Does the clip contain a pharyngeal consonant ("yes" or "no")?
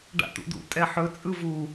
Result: yes